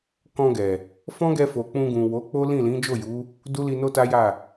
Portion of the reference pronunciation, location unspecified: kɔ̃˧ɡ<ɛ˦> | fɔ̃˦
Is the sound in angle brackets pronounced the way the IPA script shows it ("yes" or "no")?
no